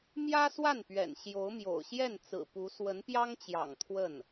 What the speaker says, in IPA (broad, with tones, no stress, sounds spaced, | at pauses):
m j ä˥ s w a˥˩ n p ɥ ɛ̰˨˩ n ɕ j o˧˥ ʊ̯ m j o̰˨˩ ʊ̯ ɕ j ɛ˥˩ n t͡s ɹ̩˨˩ p u˧˥ s w ə˧˥ n p j ɑ˥ ŋ t͡ɕ j ɑ̰˨˩ ŋ t̪ʰ w ə˥˩ n